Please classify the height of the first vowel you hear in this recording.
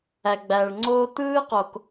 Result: low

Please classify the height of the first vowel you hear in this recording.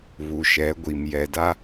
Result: high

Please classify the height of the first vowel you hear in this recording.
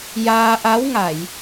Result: low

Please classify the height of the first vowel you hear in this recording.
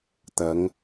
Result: low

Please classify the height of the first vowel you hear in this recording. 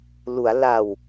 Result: high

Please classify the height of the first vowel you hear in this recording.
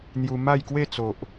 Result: high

